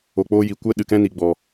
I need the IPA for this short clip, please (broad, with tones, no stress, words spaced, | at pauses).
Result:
o˨k͡poː˧ji˨ kʷɛ˦ɗɨ˨kɛ̃˦ ni˨ɡ͡bɔ˨